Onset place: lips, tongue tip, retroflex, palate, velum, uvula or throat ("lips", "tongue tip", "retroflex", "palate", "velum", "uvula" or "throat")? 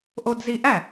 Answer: throat